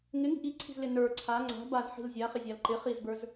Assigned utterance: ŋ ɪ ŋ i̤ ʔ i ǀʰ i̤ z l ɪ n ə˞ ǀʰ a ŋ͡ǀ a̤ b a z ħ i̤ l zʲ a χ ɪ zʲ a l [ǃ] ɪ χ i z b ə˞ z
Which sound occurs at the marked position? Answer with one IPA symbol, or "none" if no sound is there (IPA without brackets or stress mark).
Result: ǃ